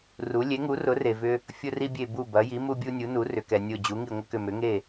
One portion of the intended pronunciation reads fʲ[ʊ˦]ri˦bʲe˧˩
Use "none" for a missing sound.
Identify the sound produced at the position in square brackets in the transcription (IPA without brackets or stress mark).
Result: ʊ˦